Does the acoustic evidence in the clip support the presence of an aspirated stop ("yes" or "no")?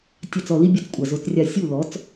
no